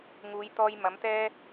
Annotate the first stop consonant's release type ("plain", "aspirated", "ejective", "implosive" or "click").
plain